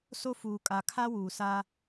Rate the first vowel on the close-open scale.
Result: mid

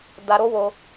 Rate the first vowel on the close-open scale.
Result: open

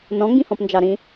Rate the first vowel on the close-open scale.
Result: mid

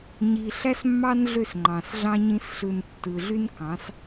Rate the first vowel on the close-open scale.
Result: close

